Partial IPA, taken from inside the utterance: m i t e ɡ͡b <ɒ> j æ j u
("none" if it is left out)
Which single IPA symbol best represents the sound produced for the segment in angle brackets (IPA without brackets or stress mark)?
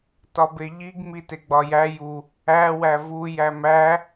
ɒ